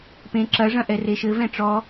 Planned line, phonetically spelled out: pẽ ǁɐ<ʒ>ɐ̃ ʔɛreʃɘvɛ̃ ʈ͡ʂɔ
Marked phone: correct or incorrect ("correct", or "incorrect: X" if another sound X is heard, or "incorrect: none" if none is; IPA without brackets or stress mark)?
incorrect: ʐ